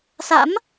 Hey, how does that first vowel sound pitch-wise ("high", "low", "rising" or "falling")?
rising